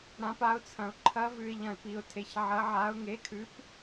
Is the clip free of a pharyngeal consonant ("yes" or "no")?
no